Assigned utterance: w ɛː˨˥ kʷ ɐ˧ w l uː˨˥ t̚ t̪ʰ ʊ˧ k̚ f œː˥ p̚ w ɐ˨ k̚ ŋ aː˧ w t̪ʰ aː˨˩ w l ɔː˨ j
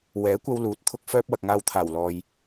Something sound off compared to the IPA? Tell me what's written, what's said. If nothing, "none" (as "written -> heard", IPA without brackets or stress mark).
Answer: none